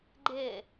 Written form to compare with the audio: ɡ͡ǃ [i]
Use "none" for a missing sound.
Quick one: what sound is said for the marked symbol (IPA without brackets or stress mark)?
ɪ